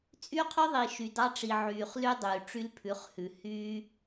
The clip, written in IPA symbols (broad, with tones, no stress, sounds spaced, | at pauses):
t͡sʼ y˦ qʰ y˦ ðˤ i˨ ʃ y˨ d ɑ˦ ʈ͡ʂ i˨ ʕ yː˨ χ l y˦ dˤ yː˨ ʈ͡ʂ y˦ l pʰ ʉ˨˦ χ h ʉ˨ h y˦